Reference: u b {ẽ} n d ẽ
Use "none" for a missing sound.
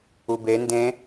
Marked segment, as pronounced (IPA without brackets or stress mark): e